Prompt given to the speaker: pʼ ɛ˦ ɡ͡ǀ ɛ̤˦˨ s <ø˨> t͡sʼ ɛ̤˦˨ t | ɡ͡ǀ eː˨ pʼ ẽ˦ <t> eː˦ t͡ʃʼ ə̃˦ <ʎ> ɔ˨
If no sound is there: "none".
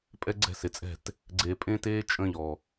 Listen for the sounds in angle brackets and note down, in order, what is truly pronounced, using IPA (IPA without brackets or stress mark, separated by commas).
e˨, t, ʎ